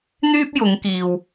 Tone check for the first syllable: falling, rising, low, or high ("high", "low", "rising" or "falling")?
high